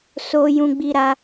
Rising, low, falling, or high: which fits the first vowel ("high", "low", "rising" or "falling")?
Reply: high